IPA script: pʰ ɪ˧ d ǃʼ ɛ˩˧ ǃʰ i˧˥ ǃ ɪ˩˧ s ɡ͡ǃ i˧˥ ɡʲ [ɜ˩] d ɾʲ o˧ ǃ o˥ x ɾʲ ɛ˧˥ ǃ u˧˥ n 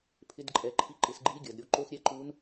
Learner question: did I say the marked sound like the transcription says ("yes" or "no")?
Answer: yes